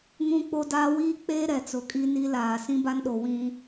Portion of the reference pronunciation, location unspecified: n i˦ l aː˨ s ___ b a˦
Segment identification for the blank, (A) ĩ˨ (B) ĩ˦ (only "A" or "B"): B